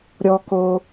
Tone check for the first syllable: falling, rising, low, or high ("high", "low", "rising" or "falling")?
high